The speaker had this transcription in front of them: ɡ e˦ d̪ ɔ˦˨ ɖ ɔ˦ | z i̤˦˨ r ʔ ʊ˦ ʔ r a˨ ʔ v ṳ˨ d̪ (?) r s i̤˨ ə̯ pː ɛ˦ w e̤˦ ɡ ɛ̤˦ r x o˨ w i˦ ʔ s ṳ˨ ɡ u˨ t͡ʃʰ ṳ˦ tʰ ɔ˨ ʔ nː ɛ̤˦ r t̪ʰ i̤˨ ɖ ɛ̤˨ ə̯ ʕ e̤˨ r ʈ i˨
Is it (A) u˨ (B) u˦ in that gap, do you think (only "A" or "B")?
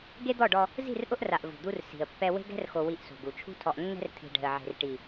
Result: B